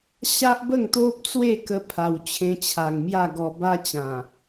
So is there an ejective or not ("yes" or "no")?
no